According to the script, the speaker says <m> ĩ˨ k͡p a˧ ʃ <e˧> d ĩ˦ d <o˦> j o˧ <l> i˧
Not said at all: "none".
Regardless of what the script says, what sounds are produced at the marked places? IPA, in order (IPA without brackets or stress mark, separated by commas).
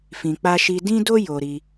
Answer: f, i˧, o˦, ɾ